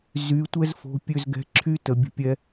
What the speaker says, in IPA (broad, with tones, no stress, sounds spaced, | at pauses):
z y˨˦ tʷ ɛ˦ z f o̤˨˦ pʲ ø˧ z ɡ ɛ̤˨˦ ǁʰ y˦ t ə˨ bʲ ə̤˧ pʲ ɛ˧